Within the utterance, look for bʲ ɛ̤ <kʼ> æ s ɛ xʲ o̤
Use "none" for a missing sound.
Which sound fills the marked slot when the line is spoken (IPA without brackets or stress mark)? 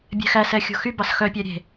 x